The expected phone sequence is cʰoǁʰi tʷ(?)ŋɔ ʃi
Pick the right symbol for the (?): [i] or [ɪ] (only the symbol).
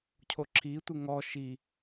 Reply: ɪ